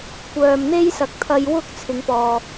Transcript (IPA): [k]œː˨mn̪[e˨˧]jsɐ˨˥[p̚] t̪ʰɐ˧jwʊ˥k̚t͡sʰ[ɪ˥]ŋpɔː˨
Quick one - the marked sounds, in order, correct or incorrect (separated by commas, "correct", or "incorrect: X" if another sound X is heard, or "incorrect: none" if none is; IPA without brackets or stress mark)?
incorrect: kʷ, incorrect: e˥, incorrect: k̚, incorrect: ɪ˨˧